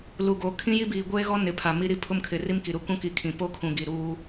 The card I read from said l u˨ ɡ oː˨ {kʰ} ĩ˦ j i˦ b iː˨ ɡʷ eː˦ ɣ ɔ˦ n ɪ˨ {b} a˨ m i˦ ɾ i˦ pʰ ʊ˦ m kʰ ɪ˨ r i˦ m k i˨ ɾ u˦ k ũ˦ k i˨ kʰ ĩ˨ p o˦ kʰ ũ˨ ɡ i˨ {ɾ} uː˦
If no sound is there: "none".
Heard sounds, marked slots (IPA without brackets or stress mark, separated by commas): kʰ, pʰ, ɾ